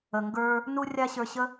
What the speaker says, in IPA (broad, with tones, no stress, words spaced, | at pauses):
ə˩ŋɡə˞˧ | nu˥rʲa˥ɕə˞˧ɕə˥